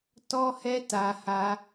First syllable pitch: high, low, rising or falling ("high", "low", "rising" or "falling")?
high